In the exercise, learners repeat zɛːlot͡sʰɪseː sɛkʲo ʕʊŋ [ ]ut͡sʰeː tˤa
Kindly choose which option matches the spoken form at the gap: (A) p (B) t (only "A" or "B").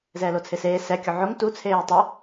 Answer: B